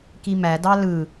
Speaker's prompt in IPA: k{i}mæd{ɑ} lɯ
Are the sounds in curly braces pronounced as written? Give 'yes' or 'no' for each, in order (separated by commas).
yes, yes